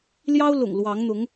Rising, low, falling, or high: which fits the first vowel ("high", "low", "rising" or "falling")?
high